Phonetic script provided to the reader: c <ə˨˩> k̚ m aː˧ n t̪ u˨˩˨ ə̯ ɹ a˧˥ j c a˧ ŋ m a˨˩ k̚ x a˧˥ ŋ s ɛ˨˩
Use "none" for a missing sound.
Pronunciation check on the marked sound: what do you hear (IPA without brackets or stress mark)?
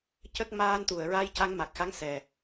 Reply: ə˦˥